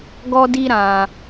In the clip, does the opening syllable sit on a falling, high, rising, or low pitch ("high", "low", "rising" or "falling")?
high